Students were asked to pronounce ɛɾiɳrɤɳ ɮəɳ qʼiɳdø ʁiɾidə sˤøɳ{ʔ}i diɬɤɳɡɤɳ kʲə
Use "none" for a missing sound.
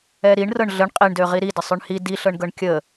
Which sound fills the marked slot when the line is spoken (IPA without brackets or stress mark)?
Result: h